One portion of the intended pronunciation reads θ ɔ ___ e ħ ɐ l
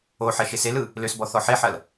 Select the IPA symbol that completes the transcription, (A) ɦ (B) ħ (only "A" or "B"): B